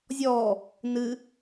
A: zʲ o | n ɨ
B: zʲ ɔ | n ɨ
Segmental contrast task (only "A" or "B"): B